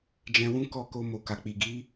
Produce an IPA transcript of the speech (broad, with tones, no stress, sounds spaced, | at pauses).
d͡ʒ ɛ̃˧ w ũ˦ k ɔ˦˨ k o˧ m o˨ k a˨ k͡p i˨ ɡ i˨˦